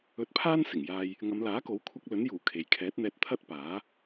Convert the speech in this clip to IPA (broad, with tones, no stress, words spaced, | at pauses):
ɵ˧t̚pʰaː˥n sɪ˨˩ŋjaː˧j | ŋɐ˨˧mlaː˨˥ko˨˥wkʷʰɐ˧k̚ lɵ˨˥njuː˨˩ kʰe˨j kʰɛː˨˥t̚n̪ɛː˧t̚t̪ʰɐ˥t̚paː˨˥